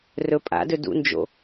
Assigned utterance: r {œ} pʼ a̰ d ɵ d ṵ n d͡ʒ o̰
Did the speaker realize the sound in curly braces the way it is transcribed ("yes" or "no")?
no